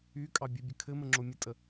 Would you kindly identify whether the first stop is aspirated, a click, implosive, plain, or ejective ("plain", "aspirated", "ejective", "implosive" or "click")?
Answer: ejective